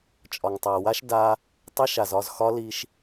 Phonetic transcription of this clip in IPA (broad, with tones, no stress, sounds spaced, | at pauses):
t͡ʃʼ ɒ˨ ŋ tˤ a˨ w a˦ ʃ d a˦ | tˤ ɛ˦ ʃ a˨ z ɒ˦˨ z x ɒ˦ l i˦ ʃ